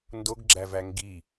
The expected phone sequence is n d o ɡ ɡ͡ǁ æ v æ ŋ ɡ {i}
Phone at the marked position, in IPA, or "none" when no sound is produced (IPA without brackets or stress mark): i